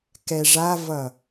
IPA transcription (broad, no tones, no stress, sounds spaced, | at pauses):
k ɛ ʐ a v ʌ